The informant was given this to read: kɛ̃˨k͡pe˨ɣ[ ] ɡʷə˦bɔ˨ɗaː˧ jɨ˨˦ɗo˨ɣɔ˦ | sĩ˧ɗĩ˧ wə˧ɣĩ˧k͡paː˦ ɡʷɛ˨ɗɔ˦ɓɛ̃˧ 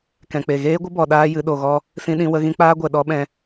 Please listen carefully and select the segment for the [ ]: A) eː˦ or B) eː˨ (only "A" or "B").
A